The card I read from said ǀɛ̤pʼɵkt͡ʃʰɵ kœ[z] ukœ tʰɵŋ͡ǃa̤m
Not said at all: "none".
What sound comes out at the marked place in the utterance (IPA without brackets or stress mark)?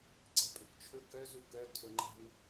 z